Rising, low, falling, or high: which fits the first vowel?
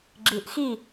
low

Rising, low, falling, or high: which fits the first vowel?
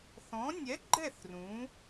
rising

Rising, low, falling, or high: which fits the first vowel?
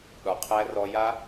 low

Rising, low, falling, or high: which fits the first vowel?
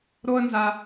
high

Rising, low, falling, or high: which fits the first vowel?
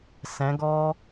rising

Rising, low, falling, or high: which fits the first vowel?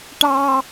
high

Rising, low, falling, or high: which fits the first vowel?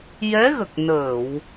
rising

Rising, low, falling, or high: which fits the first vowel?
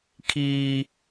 high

